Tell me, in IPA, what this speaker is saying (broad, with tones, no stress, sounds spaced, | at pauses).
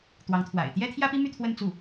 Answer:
t̪ w ɑ˧˥ ŋ t̪ʰ w a̰˨˩ ɪ̯ t̪ j ɛ˥ t̪ʰ j ä˥ p i˥ m y˥˧ t̪ʰ w ə˥˧ n t͡s u˥˩